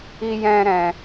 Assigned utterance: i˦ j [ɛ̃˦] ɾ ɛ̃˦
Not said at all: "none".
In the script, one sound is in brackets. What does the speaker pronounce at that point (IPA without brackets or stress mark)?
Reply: ɛ̃˦